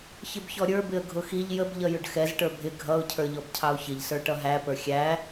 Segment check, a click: absent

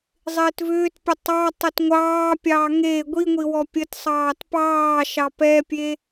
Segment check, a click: absent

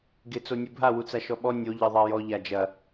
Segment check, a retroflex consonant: absent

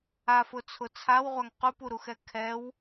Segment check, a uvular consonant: present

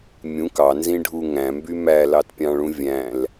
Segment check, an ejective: absent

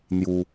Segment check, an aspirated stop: absent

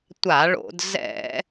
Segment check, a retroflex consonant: present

